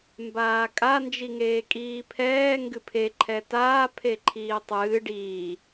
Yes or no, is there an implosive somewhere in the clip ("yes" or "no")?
no